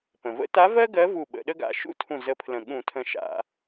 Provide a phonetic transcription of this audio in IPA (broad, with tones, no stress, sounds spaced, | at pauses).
p ə̃˩ v ə̰˧˥ t a˧˥ v ɜ˥ ɡ ɜ˧˥ v u˧˩ ɓ ə̰˧˩˧ ɗ ə˥ ɡ a̰˧˩ ʃ ṵ˥ tʰ ũ˧˩ z ə˧˥ pʰ l ə̃˧˩ ɠ ũ˧˩˧ tʰ ə̃˧˩ ʃ a̰˧˩˧